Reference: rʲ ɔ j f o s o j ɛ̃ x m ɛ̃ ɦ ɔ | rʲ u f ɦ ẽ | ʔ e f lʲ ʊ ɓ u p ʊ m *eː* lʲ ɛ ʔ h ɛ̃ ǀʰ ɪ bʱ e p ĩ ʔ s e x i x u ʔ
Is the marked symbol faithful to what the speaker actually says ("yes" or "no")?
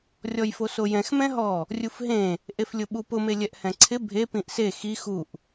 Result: no